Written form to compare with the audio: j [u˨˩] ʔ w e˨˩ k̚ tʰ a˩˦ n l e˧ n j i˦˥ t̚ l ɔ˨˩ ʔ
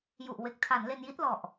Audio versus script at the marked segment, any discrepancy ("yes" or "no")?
no